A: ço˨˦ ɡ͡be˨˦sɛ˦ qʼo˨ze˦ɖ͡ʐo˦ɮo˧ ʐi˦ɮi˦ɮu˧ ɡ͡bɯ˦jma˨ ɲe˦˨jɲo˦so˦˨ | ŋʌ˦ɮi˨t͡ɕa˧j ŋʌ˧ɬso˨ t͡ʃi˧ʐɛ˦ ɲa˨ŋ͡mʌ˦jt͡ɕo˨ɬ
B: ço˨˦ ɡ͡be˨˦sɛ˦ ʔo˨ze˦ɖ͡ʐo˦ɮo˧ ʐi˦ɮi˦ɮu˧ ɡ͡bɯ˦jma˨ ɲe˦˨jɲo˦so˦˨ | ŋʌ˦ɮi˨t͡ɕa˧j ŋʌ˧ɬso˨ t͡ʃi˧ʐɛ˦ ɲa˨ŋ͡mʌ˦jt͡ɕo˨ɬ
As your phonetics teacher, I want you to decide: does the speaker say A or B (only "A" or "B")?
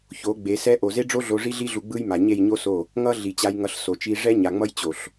B